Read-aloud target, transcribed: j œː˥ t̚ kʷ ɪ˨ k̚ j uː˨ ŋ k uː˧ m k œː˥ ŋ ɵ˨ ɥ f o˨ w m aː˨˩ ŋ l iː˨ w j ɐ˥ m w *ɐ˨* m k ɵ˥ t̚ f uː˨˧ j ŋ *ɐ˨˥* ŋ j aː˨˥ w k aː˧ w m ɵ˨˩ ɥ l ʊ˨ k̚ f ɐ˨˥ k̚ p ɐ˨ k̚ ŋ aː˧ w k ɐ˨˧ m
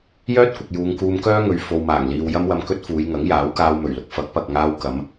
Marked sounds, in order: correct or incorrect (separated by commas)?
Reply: incorrect, correct